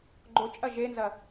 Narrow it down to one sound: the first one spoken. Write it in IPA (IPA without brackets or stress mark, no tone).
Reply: ɡ͡ǃ